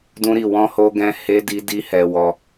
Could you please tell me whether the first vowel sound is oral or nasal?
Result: nasal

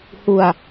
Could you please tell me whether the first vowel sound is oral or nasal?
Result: oral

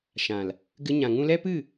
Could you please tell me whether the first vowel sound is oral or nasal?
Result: nasal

